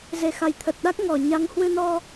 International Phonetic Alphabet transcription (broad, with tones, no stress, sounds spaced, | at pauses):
z e˨˩ x a˨˩ j t̪ʰ ə˨˩ t̚ ɗ a˦˥ k̚ ŋ ɔ˨˩ ɲ a˨˦ ŋ h w ɨ˧ n ɔ˧